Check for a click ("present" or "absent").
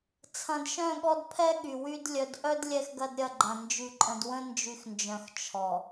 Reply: present